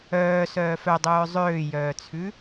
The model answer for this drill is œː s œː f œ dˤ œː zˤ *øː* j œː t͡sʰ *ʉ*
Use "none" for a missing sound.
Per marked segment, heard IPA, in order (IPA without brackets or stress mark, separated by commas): øː, ʉ